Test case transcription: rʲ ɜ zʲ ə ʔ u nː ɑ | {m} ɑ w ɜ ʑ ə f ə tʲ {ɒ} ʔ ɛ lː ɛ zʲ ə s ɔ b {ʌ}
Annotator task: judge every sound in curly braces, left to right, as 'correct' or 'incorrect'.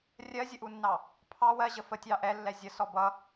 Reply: incorrect, incorrect, correct

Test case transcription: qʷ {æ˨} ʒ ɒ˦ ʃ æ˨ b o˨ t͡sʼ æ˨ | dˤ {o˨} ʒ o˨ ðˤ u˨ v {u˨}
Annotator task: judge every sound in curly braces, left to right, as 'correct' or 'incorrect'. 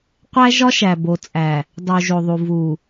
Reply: incorrect, incorrect, correct

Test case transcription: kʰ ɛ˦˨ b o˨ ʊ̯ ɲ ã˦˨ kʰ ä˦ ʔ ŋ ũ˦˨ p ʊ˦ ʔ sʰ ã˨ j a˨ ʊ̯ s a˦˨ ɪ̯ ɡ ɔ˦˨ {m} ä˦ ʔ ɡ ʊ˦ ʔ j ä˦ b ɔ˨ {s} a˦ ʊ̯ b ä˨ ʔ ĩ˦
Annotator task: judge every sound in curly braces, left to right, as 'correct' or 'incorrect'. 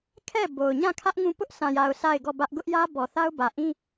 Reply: incorrect, incorrect

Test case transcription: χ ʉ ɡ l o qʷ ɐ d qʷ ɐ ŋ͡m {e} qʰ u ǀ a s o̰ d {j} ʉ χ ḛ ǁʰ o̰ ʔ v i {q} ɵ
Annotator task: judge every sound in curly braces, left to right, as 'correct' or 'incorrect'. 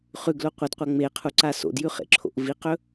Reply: correct, correct, correct

